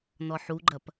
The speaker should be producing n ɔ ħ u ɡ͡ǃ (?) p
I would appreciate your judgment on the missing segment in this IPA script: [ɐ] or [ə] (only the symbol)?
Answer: ɐ